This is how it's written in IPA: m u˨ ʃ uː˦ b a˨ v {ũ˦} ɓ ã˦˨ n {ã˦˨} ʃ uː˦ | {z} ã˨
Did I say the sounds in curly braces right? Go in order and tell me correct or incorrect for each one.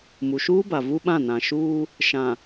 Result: incorrect, incorrect, incorrect

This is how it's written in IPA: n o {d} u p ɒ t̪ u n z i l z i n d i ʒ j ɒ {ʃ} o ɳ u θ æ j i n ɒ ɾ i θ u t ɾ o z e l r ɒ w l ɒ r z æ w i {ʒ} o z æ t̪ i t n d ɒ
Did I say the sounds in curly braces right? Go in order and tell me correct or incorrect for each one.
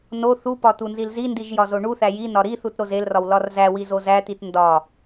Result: incorrect, incorrect, incorrect

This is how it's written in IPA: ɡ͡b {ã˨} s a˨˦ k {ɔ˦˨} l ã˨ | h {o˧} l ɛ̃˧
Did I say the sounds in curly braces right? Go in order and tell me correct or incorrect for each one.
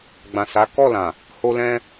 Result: correct, correct, correct

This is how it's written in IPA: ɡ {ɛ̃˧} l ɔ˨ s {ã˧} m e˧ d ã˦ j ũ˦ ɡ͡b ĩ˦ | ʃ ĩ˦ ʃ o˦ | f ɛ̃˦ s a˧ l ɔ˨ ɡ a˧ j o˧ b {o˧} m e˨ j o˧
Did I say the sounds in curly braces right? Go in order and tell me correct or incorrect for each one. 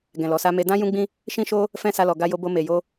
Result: incorrect, incorrect, correct

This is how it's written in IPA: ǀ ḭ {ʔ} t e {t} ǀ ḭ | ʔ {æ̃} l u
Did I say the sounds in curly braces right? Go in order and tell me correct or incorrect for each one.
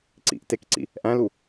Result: correct, incorrect, correct

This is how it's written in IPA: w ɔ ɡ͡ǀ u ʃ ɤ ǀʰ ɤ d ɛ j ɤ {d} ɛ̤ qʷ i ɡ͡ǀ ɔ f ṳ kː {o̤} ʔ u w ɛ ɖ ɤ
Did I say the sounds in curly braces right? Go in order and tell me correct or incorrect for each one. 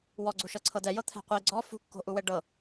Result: incorrect, correct

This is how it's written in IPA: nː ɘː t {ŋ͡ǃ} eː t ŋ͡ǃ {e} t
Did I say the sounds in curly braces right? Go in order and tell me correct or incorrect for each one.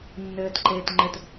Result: incorrect, incorrect

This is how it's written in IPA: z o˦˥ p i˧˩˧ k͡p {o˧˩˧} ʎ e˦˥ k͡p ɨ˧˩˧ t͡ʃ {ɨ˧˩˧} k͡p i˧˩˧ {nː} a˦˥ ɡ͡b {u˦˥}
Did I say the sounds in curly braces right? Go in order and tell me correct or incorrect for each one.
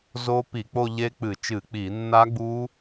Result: incorrect, correct, correct, correct

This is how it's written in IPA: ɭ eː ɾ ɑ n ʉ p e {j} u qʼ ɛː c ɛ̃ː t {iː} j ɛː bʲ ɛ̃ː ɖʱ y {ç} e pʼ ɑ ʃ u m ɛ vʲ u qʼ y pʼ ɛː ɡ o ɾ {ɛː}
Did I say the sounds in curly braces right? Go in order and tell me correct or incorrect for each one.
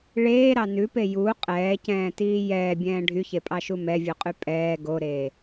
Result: correct, correct, correct, incorrect

